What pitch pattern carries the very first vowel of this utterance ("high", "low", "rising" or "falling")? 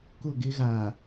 falling